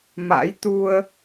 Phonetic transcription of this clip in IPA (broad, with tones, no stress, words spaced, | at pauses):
ma̰˧˥jt̪u˧ə̯